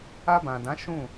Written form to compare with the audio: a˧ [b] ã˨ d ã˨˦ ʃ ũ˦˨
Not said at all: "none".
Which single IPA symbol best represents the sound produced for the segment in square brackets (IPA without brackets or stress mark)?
b